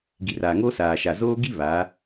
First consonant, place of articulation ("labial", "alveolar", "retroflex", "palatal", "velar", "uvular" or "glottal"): velar